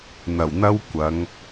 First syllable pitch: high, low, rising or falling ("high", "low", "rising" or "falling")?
low